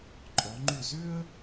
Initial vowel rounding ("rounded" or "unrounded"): rounded